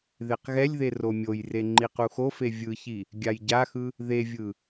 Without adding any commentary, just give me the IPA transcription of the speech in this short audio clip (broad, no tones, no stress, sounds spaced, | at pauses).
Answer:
ð e q ɣ ɛ lʲ ð e r o mʲ o j r e ŋ͡ǃ i q u x o f e vʲ ɯ ç i | ɡʲ a j ɟ a x ɯ | ð e vʲ ɯ